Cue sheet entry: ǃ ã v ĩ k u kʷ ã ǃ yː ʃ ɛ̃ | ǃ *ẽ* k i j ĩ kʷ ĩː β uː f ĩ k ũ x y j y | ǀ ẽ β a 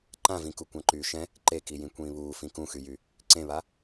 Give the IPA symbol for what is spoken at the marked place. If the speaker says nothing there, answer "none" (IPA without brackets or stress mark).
e